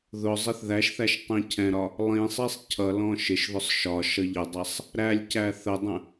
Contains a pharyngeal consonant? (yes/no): no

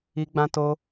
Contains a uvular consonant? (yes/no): no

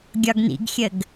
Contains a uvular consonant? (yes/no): no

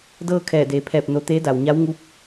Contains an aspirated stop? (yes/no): yes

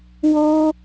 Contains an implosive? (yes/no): no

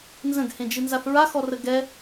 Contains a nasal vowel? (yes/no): yes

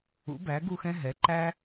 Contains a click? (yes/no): yes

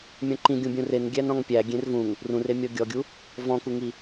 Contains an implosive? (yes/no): no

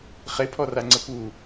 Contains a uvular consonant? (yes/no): yes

